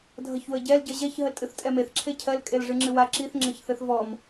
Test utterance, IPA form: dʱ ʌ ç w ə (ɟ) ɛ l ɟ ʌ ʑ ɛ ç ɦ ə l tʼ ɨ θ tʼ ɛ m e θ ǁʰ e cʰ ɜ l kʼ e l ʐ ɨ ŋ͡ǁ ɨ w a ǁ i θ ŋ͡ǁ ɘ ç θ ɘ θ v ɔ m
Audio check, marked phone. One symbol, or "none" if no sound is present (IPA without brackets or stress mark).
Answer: ɟ